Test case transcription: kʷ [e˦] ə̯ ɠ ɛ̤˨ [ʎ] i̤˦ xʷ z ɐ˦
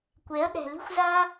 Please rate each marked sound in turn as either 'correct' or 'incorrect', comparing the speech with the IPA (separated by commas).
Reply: incorrect, incorrect